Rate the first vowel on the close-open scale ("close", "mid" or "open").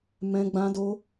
mid